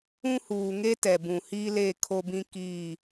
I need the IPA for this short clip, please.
ũ˦ h uː˨ ŋ e˦ t ɛ˨ b ũ˨ h iː˦ l eː˦˨ kʰ o˦ b ĩ˦ k i˦˨

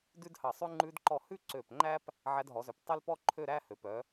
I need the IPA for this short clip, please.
d ʉ˥ d h ɑ˧˩ sˤ ʉ˥ ŋ͡ǃ ʉ˧ d ǃ ɔ˧˩ h ʉ˥˧ ǀ ø˧˩ p ŋ͡ǃ æ˥ p | ʕ æ˧ d ɦ ɔ˩˧ z ø˩˧ p tˤ ø˥ l p ɔ˥ ǃʰ ø˥˧ ɾ æ˥ h ø˩˧ p œ˩˧

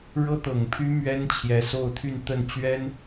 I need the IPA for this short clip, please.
ɻ ɤ˥ t̪ ɤ˨˩ ŋ pʰ y˥ m ɥ ɛ˥ n t͡ɕʰ j ɛ˧˥ s o˥˧ ʊ̯ t̪ʰ y˥˧ n t̪ ə˥˩ n t͡ɕ ɥ ɛ˥ n

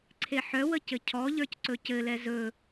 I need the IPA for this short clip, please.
ǀʰ e ħ œ w ə c ɘ cʰ ɔ ʎ ə˞ c ǀ ɵ c ɘ l ɛ z ɵ

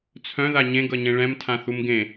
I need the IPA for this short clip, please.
t͡sʰ œ̃ ð a ɲ ẽ ɡ ʌ ɲ ẽ ɭ ɛ̃ m tʰ ã θ u m ɡ ẽ

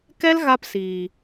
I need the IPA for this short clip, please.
k ɛ˦ l ɣ a˦ p s iː˨

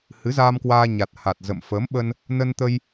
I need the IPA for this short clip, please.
h ɨ˨˦ z aː˧ m k w aː˧ ɲ a˨˩ t̚ h a˨˩ t̚ z ə̰˧˨ m f əː˨˦ m ɓ ə˧ n | n ə˧ n t̪ ə˧ j

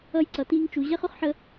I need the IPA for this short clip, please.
ʌ˧ j ǀ ʌ˨ t iː˧ ŋ t͡ʃ u˨ ʑ ɛ˧ χ ʊ˦ χ ħ ə˧

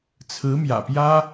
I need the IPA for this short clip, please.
t͡sʰ ɹ̩˧˥ m j ä̰˨˩ p j ä˥

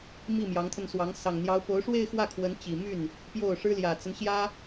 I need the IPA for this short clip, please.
m i˥˩ m j ɑ˧˥ ŋ t̪ʰ ə˧ n s w ɑ˧˥ ŋ s ɑ˨˩ ŋ n̪ j ɑ˧˥ ʊ̯ p o˧˥ ʊ̯ ʂ w e˥˧ ɪ̯ x w ä˥˩ kʰ w ə˧˥ n t͡ɕ i˨˩ m y˥˩ n | p j o˥˩ ʊ̯ ʂ ɻ̩˥ l j ä˨˩ t͡s ə˦ n ɕ j ä˥

